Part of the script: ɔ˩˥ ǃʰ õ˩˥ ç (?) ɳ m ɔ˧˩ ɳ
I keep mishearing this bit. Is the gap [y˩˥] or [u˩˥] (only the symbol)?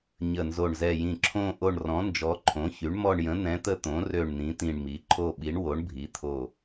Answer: y˩˥